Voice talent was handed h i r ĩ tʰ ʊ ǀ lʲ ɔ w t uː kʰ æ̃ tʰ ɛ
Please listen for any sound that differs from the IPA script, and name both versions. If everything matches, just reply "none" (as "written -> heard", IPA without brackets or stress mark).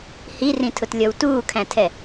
ǀ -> t